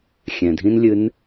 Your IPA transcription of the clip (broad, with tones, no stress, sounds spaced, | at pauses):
xʲ ɛ̃˩ dʱ ĩ˥ n lʲ ɨ˧˥ n